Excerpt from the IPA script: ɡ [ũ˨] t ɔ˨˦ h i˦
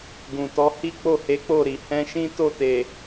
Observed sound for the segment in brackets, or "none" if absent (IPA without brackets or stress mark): ũ˨